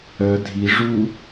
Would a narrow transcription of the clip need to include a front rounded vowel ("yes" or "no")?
yes